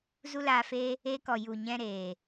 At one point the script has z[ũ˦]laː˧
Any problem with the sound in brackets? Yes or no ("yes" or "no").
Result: yes